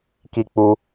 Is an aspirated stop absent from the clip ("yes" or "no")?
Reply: yes